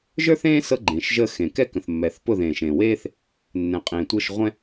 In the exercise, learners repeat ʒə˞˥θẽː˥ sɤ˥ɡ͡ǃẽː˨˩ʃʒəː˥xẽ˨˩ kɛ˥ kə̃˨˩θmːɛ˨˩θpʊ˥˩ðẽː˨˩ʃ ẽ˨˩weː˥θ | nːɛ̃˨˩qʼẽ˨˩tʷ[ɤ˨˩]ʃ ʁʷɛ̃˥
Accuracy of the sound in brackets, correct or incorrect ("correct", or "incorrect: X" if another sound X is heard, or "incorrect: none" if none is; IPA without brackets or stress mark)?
incorrect: ɤ˥˩